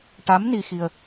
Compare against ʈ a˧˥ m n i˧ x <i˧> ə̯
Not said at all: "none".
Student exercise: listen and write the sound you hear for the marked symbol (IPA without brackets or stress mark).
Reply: i˧